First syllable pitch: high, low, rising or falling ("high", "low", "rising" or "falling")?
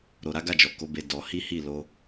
low